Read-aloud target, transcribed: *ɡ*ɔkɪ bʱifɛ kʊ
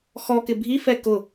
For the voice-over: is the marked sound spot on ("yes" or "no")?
no